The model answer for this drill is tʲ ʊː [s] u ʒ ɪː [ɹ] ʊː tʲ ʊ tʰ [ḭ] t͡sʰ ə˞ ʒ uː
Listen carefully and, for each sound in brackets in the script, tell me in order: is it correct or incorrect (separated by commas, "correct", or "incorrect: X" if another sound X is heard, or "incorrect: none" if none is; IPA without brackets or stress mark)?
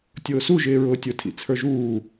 correct, correct, correct